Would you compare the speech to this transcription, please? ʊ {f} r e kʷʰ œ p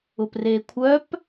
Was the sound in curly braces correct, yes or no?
no